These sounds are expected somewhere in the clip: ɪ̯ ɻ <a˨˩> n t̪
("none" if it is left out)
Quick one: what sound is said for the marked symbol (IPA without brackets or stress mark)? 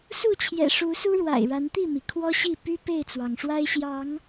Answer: a˨˦